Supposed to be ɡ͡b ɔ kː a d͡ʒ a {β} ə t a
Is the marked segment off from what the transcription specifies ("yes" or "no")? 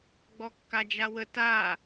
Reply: yes